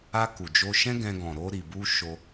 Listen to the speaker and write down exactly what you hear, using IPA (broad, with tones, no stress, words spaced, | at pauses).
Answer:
a˧ ku˨d͡ʒo˧ʃɛ̃˦ɡɛ̃˧ ɡɔ̃˨ ɾo˧ɾi˨bu˧ ʃo˧